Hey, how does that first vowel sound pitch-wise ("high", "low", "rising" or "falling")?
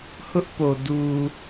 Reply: high